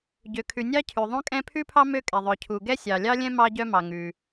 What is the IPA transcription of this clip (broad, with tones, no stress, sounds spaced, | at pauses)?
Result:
ɟ ø˩ kʰ ʉ˩ nʲ ɑ˥ cʰ ʉ˩ ðˤ õ˥ kʼ ɛ̃˥ pʰ ʉ˥ pʰ ɑ˥ m ø˥ kʼ ɛ˩ ðˤ œ˩ cʰ u˩ ɡ ɛ˥ sʲ ɑ˩ lʲ ɑ˥ lʲ ɛ̃˥ m ɑ˥ ɟ œ˥ m ɑ˩ ŋ ʉ˩